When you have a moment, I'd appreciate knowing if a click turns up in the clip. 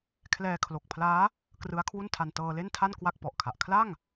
no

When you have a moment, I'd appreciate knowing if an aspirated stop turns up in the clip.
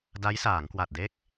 no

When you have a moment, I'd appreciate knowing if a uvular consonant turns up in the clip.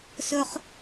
yes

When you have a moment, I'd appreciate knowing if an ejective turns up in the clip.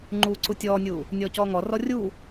no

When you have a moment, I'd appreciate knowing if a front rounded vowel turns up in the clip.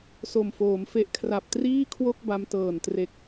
no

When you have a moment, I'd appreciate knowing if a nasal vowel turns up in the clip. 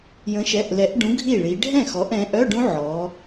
yes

